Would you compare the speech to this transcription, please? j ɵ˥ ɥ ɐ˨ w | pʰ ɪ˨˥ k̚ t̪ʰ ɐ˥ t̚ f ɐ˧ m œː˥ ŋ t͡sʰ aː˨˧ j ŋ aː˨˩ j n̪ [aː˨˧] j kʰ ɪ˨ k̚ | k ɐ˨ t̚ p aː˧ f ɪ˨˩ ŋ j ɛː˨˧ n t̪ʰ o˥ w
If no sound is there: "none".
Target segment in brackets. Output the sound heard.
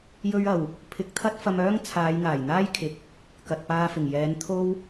aː˥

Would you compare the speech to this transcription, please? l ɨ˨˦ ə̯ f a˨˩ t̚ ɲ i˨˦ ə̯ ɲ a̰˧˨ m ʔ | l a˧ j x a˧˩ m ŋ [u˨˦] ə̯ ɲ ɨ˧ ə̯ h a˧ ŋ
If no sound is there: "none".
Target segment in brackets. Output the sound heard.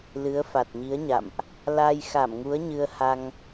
u˨˦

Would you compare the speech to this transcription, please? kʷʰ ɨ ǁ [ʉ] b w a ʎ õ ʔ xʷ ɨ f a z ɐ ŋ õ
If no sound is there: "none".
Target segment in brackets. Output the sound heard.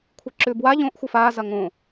ʉ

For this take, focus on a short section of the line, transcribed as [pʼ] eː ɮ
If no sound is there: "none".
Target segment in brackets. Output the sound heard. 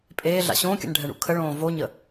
pʼ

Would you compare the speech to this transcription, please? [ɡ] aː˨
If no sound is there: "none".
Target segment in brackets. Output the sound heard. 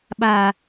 ɓ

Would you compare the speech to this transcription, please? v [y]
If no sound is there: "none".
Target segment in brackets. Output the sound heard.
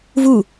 u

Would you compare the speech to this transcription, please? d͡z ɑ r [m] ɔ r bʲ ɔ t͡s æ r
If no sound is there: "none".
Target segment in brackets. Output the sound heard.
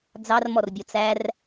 m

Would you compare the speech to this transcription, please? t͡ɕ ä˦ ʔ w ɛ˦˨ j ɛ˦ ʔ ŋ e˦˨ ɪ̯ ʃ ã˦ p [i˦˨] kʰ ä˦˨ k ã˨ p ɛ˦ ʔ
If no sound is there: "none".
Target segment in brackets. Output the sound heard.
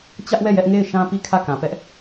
i˦˨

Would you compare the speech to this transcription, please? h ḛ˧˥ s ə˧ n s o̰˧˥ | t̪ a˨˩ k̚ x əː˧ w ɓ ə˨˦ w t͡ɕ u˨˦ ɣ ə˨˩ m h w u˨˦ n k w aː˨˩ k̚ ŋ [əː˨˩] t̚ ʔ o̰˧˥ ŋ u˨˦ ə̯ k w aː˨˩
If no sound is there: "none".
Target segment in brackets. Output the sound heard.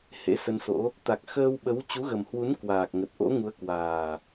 ə˨˩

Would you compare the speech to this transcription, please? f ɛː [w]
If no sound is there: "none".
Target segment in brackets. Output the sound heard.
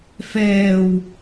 w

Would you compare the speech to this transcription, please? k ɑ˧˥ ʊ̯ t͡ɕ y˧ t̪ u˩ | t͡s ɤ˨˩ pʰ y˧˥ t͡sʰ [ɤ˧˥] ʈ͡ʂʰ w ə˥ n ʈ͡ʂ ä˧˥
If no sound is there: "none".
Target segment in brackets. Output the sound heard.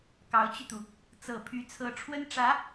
ɤ˧˥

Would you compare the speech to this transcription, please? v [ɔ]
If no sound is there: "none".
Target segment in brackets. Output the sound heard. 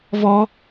ɔ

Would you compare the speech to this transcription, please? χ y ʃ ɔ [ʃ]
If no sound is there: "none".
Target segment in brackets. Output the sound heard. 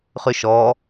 none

